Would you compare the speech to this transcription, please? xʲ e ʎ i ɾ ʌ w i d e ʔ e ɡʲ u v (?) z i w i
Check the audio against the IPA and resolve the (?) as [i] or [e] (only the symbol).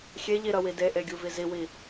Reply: i